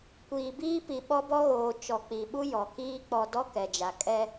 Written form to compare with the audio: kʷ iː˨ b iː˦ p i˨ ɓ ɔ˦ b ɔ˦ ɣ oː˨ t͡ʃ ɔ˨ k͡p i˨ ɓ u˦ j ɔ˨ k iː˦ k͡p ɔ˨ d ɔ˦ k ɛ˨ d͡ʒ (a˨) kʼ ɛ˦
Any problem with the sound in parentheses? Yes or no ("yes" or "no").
no